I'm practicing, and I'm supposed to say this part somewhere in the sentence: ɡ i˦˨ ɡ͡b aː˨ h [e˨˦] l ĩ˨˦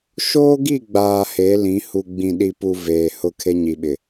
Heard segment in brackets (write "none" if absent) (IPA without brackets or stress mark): e˨˦